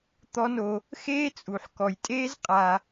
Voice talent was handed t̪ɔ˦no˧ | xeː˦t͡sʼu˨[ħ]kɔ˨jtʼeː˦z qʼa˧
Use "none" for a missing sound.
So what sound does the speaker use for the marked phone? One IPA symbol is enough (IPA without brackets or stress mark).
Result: ħ